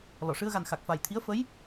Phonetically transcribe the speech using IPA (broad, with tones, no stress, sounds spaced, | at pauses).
l ɔ˨˩˨ ʂ ɨ˧ ə̯ ɣ a˨˩ n x a˨˩ k̚ f a˨˩ j t̪ʰ i˧˥ ə̯ f ə˧˥ j